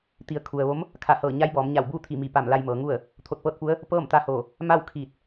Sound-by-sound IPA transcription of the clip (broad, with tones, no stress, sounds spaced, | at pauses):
t̪ i˩˧ ə̯ kʰ u˩ ə̯ ʋ o˧˥ m | kʰ a˧˩ h ɤː˧˩ ɲ a˧˥ j b ɔː˩˧ m ɲ a˧˩ w b uː˥˨ t̪ʰ i˧˩ m i˧˩ p a˧˩ m l a˧ j m ɤː˩˧ ŋ u˥˨ ə̯ | t̪ʰ o˧˩ t̚ p ɤː˥˨ t̚ p u˧˥ ə̯ | p ɤː˥˨ m t̪ a˧˥ h oː˧˩ | m a˥˨ w kʰ iː˧˩ t̚